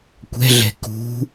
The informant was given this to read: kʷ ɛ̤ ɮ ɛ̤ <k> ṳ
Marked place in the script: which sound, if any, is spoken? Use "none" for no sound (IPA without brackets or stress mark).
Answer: k